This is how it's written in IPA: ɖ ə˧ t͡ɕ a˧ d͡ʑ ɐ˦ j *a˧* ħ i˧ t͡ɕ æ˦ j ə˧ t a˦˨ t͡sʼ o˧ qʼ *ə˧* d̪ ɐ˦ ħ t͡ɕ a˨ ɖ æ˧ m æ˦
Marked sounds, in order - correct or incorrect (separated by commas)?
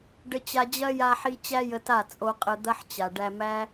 correct, correct